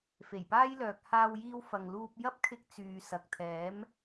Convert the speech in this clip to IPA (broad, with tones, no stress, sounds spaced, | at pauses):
f e˨˩ j p aː˥ j l œː˨ k̚ h aː˧ w j iː˧ w f ɐ˨ ŋ l uː˧ p̚ j ɐ˥ p̚ kʰ ɪ˧ k̚ t͡s yː˨ s ɐ˨ k̚ t̪ʰ ɛː˨˥ m